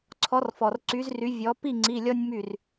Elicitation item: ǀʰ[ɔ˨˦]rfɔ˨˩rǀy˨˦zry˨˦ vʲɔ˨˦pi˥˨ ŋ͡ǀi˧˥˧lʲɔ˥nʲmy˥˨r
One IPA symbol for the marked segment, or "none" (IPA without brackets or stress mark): ɔ˨˦